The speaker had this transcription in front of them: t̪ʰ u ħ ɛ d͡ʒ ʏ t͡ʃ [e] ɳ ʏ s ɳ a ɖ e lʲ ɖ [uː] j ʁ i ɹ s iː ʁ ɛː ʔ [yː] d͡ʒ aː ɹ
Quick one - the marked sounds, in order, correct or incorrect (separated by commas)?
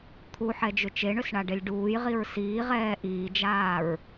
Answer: correct, correct, incorrect